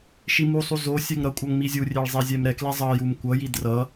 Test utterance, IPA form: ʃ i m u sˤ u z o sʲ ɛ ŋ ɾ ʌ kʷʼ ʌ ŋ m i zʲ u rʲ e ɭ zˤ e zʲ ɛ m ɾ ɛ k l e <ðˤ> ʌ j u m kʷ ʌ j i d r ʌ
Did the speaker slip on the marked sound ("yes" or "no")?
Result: yes